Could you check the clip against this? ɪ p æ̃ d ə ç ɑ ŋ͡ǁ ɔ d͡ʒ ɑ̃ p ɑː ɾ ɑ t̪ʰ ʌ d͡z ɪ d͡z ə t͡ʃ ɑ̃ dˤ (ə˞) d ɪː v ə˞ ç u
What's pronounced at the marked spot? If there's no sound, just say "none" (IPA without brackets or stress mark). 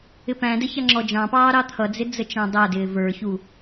ʌ